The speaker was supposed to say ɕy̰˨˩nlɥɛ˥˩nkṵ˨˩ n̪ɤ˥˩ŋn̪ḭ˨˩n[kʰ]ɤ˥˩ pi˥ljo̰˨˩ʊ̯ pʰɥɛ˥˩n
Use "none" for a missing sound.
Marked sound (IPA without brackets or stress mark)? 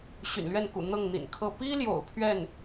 kʰ